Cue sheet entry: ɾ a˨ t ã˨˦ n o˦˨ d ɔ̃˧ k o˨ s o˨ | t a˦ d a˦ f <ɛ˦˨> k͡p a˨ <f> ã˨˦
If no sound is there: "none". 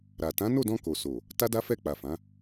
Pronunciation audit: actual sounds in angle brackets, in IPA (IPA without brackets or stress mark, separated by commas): ɛ˦˨, f